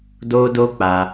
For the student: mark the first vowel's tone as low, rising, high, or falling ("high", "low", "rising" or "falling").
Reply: high